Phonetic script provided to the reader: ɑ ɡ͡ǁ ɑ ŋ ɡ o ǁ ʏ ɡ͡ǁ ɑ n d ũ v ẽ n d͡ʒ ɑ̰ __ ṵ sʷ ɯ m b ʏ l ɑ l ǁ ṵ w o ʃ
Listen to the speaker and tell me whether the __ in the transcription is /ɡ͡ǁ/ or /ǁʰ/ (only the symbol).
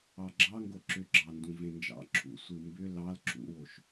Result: ǁʰ